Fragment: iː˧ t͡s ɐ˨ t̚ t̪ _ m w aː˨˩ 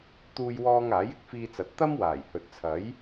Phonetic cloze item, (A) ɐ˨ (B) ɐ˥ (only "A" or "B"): B